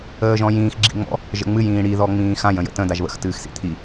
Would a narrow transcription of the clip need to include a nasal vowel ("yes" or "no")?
yes